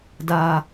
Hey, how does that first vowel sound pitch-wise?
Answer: low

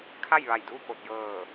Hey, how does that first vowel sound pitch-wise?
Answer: falling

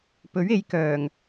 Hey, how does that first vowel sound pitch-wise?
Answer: rising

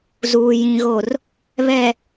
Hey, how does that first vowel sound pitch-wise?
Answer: low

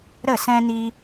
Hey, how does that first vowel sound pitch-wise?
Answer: falling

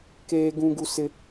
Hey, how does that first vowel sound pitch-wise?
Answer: high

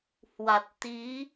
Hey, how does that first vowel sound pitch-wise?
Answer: low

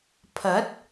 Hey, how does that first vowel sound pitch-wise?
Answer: rising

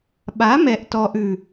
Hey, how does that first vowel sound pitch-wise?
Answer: rising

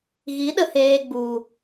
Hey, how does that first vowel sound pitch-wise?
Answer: rising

